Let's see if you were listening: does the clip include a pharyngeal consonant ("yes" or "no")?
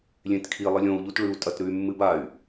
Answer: no